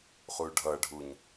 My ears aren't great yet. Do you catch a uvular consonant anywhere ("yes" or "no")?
yes